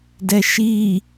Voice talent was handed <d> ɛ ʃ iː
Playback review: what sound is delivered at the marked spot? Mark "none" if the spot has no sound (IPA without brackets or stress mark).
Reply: d